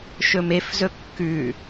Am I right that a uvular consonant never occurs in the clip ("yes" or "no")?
yes